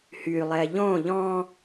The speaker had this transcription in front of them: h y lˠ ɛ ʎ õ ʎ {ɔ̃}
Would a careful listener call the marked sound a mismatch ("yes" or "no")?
no